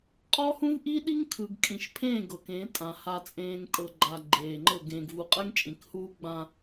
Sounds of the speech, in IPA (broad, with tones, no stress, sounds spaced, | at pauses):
qʼ ɔ˦ h ũ˦ v ʔ i˦ ɗ i˦ ŋ kʰ ɯ˨ ɡ kʼ ĩ˨ ʃ pʰ ẽː˦˨ ɡ ɤ˨ k ẽ˨˦ tʼ ã˨ h a˨ t͡sʼ ẽː˨ ŋ tʼ ɤ˨ ɡ͡ǃ a˨ ɡ͡ǃ eː˨ ŋ͡ǃ ɤ˦˨ ɡ ẽː˨ ɡ v u˨ qʼ ɛ˦ ŋ t͡ʃʼ ĩ˨ k h uː˦ ɡ͡b ã˦